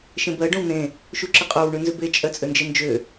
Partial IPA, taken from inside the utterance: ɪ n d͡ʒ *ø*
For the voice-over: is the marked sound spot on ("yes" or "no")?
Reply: yes